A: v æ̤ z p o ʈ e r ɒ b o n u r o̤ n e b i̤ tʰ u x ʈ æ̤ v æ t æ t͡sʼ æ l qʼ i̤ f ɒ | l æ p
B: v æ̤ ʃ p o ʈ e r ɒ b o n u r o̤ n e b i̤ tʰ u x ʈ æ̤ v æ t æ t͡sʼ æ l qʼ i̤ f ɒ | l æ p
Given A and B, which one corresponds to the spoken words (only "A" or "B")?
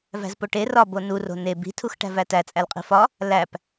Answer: A